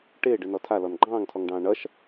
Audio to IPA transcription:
ʈ ɪː ɖ ɨ n ɔ tʰ a l ɔ n ɡ͡ǃ ɑ̃ː ŋ tʰ ɔ ŋ ɖ ɑ̃ː ɳ ʌ ʃ

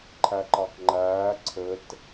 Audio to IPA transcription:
ǃʰ æ ǃ ɑ k ŋ͡ǃ æː ǀʰ ɘ t

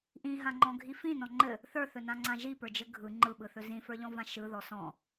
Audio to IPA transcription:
ʔ ĩ ɦ ã ŋ͡ǃ ɔ̃ ɡʱ i f ĩ n ɔ̃ ŋ͡ǃ ɘ | θ ə˞ θ ɵ n ã ŋ͡ǀ ã ʒ i p ə˞ d͡ʒ ɘ ɡʱ ɯ ŋ͡ǃ ɯ ɓ ɯ θ ɵ z ĩ f ə˞ ʎ ɔ̃ v ã ʃ ɯ ð ɔ s ɔ̃

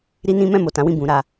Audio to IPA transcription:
ɾ i˦ n ĩ˦ m ɛ̃˦˨ m o˨ t ã˨˦ w ĩ˦˨ b ũ˧ ɾ a˧

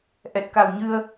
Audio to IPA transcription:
ʔ ɛ˨˩ t̚ k a˨˩ w ɲ ɨ˧ ə̯

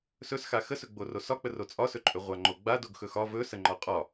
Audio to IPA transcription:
s ɵ s x a x ə s ɵ ɡ͡b o r o s ɒ k͡p ə r o t͡sʼ ɒ s ɵ ǃʼ ɵ ʁʷ a ŋ͡ǃ o ɡ͡b a d o ɡ x ɵ x ɒ v ɵ s ə ŋ͡ǃ ɒ qʼ ɒ

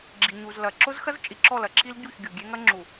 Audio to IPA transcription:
ɡ͡ǁ i˨ ɲ u˨ z l ɐ˨ ǁ ʊ˦ z x ɐ˦ z t͡ʃʼ i˨ ǁ ɔ˦˨ l ɐ˨ ǁʰ i˦ l ɟ u˦˨ ç ɡʲ u˨ ɡʲ e˦ ŋ ɐ˦ ŋ͡ǁ u˨

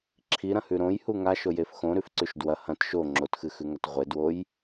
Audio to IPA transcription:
ǁʰ i ɾ ɐ̃ h ʉ ɾ õ j h u ŋ a ʃ o j e f x õ ɾ ʉ f ǀ ʉ ʃ d w ɐ h ɐ̃ t ʃ o ŋ͡ǁ o t x ɨ x ʉ ŋ ɐ t ʁʷ e d w o j

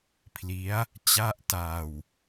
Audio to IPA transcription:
pʰ l i˦˥ a̯ | t͡ɕ a˥˩ ʔ t aː˧ w

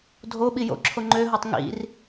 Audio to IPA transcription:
dʱ o ɓ i j o̰ ǁʰ o ŋ͡ǃ ø ɦ ɤ tˤ ŋ ḭ r

